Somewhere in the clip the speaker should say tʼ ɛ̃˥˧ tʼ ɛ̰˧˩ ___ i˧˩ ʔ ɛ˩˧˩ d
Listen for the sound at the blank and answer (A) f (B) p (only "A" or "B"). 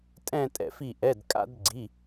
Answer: A